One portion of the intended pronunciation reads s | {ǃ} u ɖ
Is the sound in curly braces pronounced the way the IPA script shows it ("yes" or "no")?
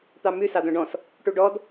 no